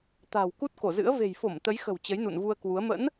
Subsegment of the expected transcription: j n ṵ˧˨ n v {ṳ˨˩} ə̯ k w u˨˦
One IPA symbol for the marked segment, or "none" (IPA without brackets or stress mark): u˧